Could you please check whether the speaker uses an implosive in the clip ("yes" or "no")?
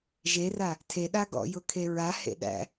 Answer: yes